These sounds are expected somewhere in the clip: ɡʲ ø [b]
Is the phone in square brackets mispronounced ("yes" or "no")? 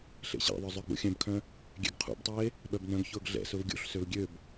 no